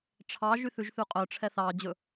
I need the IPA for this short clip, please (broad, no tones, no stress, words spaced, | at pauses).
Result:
ʈ͡ʂʰɑ ʒyθʉʒθʉqʼœ ʈ͡ʂʰɛθɑ d͡ʑɵ